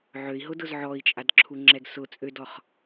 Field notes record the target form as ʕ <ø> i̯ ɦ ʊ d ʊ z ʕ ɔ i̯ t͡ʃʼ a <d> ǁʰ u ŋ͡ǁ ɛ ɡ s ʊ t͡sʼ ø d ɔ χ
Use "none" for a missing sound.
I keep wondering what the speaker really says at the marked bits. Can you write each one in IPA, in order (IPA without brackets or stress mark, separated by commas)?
ø, d